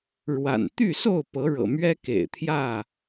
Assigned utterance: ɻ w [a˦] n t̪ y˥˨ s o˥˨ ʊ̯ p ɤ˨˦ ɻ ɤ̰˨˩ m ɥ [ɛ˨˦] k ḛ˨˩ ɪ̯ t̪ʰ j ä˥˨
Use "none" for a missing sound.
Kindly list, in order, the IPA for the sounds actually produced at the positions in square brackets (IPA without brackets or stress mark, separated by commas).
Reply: a̰˨˩, ɛ˦